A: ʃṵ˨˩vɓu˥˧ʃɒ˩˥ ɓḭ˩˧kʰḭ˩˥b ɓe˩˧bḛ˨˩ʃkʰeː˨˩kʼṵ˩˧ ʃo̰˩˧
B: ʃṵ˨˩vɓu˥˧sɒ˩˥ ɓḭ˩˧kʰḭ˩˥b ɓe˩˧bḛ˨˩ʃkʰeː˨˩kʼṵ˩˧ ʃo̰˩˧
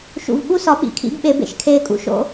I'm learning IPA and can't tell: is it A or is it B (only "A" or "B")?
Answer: B